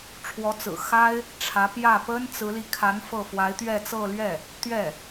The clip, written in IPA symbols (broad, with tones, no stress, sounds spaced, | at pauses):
ʈ͡ʂʰ w ɔ˧˥ t͡s ɹ̩˨˩ x a˥ ɪ̯ | ʈ͡ʂʰ ä˧˥ p j ä˥˩ p ə˥ n t͡s ɹ̩˧˥ l i˧ kʰ a˧˥ n f ɤ˥˩ f w a˧˥ ɪ̯ t̪ ɥ ɛ˥˧ t͡s ɤ˥˧ l ɥ ɛ˥˩ | t̪ ɥ ɛ˥˩